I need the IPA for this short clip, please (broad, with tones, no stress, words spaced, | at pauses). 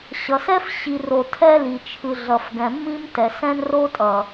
ɕʌ˨sɛ˦f ɕi˨ ro˨tʰɛ˦li˨ t͡ʃʰɯ˨ɮʌ˨fɡɛ̃˨mːĩ˦m tɛ˨sɛ̃˦nro˦ tʼʌ˨